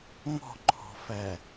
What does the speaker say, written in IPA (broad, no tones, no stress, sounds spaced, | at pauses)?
ŋ ɔ̤ ǃʰ ɔ̤ f æ